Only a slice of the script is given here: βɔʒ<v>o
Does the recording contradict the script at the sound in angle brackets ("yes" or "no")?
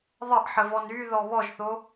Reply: yes